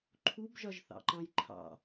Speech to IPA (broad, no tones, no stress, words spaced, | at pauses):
ǃʰubʒɒʒθɑ̰ ǃɑ̃jǃʰɑ̰